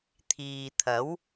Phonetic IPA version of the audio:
t̪ʰ iː˨ t̪ʰ ɐ˨˥ w

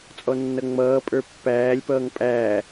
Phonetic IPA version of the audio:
t͡sʼ ɔ nː ʌ ŋ͡m ʌː pʼ ə˞ pː æː lʲ p ʌː ŋ pʼ æː

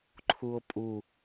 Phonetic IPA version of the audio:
ǃʰ u o̯ pʼ u

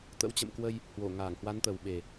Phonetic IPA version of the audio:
t̪ ə̰˧˥ w t͡ɕ ə̰˧˨ m k w ə˧ j | h w o˧˩ ŋ aː˧˩ ŋ h w a˨˦ n t̪ ə˨˩ w ɓ e˨˩

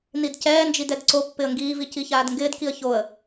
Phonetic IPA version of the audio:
n i d c ɛː n d͡ʒ i d ɛ d ǀ o pː ɪ ə̯ ŋ ɡ iː v i c i ç aː d ŋ ɡ ɪː d k i ə̯ ç o ə̯

